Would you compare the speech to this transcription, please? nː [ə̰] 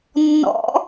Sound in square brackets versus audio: incorrect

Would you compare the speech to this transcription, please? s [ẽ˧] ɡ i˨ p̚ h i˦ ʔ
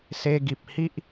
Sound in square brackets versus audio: incorrect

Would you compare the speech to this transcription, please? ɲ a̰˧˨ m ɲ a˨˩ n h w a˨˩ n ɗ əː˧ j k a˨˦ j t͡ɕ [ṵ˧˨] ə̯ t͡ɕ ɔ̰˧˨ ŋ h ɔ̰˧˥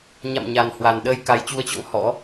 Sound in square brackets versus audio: incorrect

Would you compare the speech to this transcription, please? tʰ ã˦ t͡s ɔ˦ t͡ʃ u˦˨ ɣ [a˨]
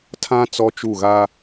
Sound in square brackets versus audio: incorrect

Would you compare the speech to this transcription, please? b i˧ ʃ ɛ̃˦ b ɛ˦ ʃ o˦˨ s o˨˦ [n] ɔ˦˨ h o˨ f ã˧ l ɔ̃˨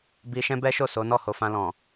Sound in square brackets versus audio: correct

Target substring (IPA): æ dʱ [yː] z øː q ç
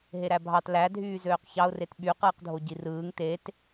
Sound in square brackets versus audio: correct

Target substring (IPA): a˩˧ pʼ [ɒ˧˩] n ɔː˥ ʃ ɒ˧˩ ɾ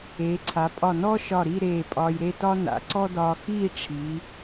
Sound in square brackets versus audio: correct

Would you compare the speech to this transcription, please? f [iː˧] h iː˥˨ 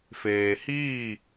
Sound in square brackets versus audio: incorrect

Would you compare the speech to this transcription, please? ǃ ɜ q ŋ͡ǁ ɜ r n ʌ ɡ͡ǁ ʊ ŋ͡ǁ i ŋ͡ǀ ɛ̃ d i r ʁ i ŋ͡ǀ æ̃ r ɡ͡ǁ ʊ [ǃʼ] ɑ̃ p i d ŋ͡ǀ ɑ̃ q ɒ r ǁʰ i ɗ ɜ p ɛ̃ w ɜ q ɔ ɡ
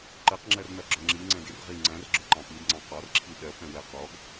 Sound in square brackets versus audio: incorrect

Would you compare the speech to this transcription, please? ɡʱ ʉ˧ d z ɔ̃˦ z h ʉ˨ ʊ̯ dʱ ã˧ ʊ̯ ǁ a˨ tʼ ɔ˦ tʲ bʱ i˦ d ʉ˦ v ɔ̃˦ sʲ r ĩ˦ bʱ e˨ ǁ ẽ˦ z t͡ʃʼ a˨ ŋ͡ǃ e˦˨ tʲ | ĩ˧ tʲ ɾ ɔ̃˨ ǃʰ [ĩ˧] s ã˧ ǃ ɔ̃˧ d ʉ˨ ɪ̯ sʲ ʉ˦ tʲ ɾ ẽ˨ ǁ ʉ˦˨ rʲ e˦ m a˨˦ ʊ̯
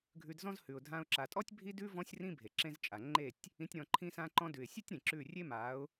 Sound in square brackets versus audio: correct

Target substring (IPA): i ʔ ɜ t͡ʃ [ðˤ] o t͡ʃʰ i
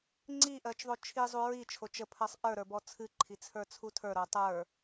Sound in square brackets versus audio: correct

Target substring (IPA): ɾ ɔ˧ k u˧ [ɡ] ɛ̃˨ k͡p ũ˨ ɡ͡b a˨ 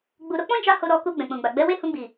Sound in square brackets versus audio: incorrect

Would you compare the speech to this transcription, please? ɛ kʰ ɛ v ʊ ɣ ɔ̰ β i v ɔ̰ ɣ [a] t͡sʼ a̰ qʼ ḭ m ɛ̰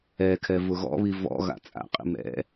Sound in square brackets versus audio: incorrect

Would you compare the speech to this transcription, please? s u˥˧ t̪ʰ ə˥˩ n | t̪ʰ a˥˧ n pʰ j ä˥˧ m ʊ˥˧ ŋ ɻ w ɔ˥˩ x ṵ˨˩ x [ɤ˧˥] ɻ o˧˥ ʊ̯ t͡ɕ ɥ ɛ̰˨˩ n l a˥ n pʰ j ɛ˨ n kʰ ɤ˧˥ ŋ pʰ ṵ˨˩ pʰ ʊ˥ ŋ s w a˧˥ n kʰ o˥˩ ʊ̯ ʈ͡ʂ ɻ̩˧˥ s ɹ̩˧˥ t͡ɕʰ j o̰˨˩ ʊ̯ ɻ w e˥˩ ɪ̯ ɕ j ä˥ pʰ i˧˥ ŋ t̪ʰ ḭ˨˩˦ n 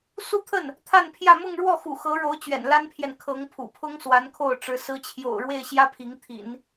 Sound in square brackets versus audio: correct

